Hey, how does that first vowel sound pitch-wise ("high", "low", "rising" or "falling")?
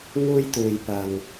high